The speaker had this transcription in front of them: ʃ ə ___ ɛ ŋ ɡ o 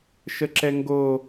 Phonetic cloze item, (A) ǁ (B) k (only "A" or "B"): A